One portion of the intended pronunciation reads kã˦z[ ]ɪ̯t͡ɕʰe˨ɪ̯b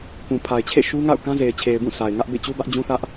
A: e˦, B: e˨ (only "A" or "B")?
B